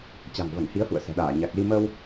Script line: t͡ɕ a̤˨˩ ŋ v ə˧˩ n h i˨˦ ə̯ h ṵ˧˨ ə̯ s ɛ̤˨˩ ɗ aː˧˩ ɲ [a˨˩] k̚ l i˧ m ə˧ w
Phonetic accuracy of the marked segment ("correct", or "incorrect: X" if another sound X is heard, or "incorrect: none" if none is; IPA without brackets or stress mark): correct